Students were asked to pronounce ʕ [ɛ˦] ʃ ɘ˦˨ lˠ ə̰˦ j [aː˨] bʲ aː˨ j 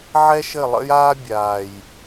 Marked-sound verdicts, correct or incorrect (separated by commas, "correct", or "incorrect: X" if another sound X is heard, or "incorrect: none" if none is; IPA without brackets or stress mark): correct, incorrect: aː˦